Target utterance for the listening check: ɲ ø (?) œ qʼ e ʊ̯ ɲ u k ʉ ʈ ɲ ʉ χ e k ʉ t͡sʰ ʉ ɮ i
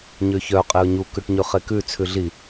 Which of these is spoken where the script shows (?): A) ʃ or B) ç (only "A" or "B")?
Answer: B